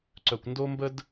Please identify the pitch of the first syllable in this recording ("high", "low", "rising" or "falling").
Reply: low